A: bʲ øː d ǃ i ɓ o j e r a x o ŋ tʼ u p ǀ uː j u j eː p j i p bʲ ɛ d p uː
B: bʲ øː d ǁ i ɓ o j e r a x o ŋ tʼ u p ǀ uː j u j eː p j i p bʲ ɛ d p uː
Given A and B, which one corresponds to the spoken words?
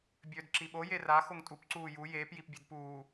B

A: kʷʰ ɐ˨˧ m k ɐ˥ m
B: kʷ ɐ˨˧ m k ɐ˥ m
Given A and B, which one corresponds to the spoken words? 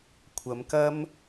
A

